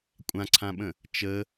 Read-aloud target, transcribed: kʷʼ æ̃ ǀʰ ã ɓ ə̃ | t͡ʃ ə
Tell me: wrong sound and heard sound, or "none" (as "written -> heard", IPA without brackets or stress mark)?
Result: æ̃ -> ã